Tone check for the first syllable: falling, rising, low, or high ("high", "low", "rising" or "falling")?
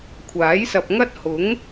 rising